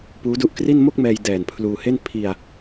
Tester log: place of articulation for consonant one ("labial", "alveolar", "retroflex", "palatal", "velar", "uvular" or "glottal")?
labial